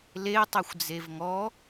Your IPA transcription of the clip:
l e tˤ e xʷ d͡z e v ŋ ɔ

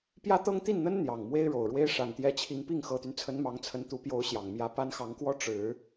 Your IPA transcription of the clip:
p j ä˥ t̪ ɤ˥ ŋ t̪ i˥˩ n n̪ ə˥ n n̪ j ɑ˨˩ ŋ m w e˥ ɪ̯ ɻ o˨˩ ʊ̯ ɻ w e˥ ɪ̯ ʂ a˨˩ n t̪ j ɛ˧˥ t͡ɕʰ i˧˥ ŋ p i˥˩ ŋ x ɤ˨˩ t̪ y˦ n t͡sʰ ə˧˥ n m ɑ˧˥ ŋ t͡sʰ ə˧˥ n t̪ u˧˥ p j o˧˥ ʊ̯ ɕ j ɑ˨˩ ŋ m j ä˧˥ p a˥ n x ɑ˧˥ ŋ k w ɔ˥ ʈ͡ʂ ɻ̩˨˩˦

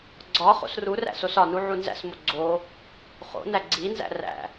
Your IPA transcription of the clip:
ɡ͡ǀ ɒ χ o̰ s r u r æ̰ s o s ɒ n u ʕ u n z æ̰ s m o ɡ͡ǀ o | χ o̰ n æ ɡ͡ǀ i n z æ̰ r æ̰

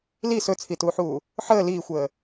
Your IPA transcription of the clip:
l i s ɵ t͡sʰ i t uː ħ uː | ħ əː l iː xʷ əː

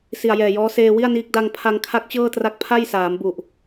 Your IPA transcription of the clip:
s i˨˩ a̯ j ɛː˨˩ j ɔː˦˥ s eː˧ w i˥˩ a̯ n iː˦˥ k̚ d a˧ ŋ pʰ a˧ ŋ kʰ a˦˥ k̚ t͡ɕ ɤː˥˩ t r a˦˥ k̚ pʰ a˥˩ j s aː˩˦ m b u˨˩ ʔ

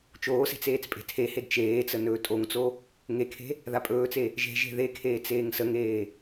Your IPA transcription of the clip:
t͡ʃ oː s e̤ t͡s eː t͡s pʼ e̤ tʰ e h e d t͡ʃ eː t͡s ə n ɵː tʼ o ŋ t͡s o | ŋ e kʰ e̤ | ð a pʼ ɵː t͡s e | ʒ e̤ ʒ e̤ ð e kʰ eː t͡s eː ŋ s ə ŋ eː

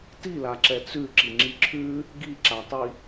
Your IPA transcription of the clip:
t i l a ǁ ɛ t͡s ʉ ǁ i ŋ͡ǁ i ǁʰ ʉ | ɡ i ǁ a tˤ i

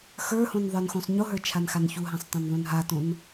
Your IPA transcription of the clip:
x ə˞ h õ n ðˤ ə˞ n x õ sˤ ɲ o ɦ ə˞ t͡ʃʰ a n x a n ç u ɦ ã sˤ tˤ õ n ðˤ ũ n ɦ a t õ n

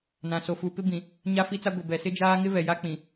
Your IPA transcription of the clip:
n ã˨ s o˨ f u˨ p ɪ˦ b ĩ˨ | ɲ a˦ f i˦ t͡s a˦ ɡʷ ɪ˨ b ɛ˨ s ɪ˦ d͡ʒ aː˦ ŋ ɪ˦ v ɛ˨ j a˦ k͡p ĩ˨

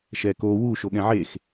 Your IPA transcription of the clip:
ʃ ɛ k o w u ʃ o ɠ ɛ̃ ʕ e x

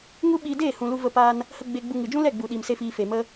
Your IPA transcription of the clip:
ŋ u˦ ɓ iː˧ d eː˦˨ h ũ˨ l u˧ v ə˧ p aː˧ n | h ə˧ ɡ͡b e˧ ɡ͡b u˧ ŋ ɨ˨ d͡ʒ ũ˦ l ɛ˦˨ ɡ͡b u˨ ɗ iː˨ m s e˧ f iː˨ f e˨ m ə˧

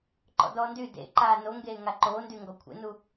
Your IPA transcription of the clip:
ǃ ɔ̰ d ɔː n d y d ḛ ǃ aː n o ŋ ɡ eː ŋ a ǃ oː n d y ŋ ɡ ɔ kʷʰ ḛ n u

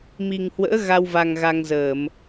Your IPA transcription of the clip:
m i˨˩ ŋ h w ə̰ː˧˥ ɣ a˧ w v a˨˩ ŋ ɣ a˧ ŋ z əː˧˩˨ m

